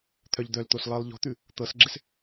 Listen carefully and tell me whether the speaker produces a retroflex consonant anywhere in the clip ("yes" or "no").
no